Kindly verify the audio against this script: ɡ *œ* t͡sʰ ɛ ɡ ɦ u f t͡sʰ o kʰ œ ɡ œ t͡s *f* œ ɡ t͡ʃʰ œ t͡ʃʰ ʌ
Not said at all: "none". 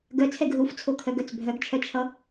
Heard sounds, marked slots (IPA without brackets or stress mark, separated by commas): œ, bʱ